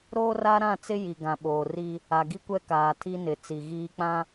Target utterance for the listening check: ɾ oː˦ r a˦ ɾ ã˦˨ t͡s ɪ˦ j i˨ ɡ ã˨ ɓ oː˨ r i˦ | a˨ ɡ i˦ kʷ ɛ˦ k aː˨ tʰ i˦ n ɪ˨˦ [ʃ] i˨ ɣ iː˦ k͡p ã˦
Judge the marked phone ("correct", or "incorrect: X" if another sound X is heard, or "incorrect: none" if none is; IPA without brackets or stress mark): incorrect: t͡s